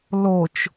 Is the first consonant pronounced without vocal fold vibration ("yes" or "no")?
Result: no